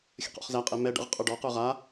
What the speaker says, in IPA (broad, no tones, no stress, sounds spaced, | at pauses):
xʲ ə̰ q ɔ̰ χ z æ qʼ ɛ m ɛ ɖ ə̰ ʁ qʼ ə˞ ɖ ɔ q ə˞ ʁ a